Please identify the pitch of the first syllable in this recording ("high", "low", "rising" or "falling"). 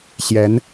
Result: rising